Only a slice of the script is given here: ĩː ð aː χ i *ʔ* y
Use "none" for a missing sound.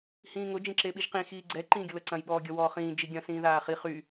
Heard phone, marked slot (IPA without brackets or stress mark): χ